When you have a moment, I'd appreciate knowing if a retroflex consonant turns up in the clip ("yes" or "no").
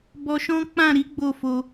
no